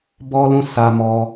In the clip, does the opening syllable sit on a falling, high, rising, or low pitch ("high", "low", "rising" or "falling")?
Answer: high